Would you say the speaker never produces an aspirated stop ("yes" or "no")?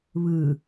yes